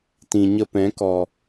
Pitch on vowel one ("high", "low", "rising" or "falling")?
low